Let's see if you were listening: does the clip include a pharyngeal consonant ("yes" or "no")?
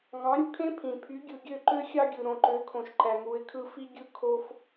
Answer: no